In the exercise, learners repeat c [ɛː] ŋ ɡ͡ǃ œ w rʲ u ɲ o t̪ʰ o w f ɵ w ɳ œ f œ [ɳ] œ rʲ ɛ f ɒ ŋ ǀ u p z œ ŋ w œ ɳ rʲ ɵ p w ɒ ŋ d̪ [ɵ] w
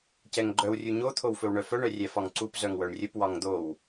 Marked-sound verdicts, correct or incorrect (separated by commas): incorrect, correct, incorrect